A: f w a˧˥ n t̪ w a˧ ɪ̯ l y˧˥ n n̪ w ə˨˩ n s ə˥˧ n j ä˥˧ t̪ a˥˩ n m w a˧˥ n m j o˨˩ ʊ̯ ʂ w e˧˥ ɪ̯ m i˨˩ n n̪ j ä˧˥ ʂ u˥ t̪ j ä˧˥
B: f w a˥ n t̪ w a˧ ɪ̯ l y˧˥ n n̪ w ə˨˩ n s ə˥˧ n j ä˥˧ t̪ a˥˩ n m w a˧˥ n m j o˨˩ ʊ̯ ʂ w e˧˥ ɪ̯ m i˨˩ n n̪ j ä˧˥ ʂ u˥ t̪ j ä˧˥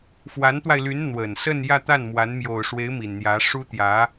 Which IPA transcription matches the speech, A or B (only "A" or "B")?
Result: A